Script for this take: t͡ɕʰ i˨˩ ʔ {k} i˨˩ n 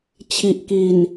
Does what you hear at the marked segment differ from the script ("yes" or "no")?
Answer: no